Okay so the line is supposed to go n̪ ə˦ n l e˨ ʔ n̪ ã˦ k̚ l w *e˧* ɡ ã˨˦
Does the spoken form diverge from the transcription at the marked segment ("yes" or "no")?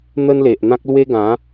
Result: yes